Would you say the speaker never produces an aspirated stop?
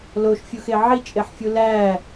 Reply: yes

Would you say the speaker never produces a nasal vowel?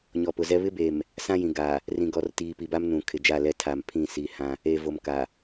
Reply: no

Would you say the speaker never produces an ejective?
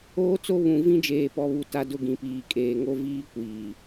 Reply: no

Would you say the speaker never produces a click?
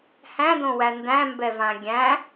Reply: yes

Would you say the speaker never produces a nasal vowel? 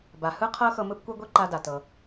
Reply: yes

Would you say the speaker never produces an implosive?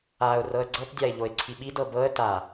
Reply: no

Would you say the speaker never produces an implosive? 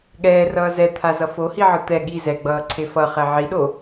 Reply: no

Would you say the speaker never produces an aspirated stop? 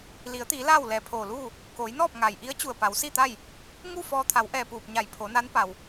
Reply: no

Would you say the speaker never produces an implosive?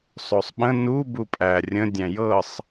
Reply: no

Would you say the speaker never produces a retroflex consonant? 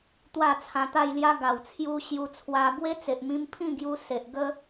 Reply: yes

